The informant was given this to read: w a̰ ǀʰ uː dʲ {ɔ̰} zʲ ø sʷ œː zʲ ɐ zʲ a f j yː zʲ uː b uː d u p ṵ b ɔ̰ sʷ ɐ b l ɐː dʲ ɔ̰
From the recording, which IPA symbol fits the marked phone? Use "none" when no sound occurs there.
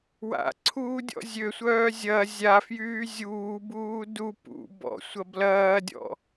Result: ɔ̰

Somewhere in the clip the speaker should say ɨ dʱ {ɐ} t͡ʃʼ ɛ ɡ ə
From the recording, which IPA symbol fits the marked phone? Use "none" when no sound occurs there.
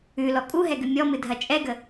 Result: ɐ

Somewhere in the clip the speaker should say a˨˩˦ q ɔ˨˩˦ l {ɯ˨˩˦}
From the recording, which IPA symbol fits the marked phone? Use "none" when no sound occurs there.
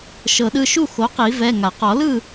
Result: ɯ˥˨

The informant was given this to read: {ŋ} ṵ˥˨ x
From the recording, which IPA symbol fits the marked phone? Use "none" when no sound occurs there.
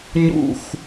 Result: ɲ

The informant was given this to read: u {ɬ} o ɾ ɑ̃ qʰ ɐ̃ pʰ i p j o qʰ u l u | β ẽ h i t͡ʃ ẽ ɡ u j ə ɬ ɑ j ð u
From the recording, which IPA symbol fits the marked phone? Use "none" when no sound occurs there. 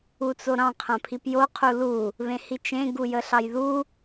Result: t͡s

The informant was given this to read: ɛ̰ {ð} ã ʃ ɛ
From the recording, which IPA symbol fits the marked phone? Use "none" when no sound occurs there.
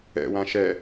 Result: w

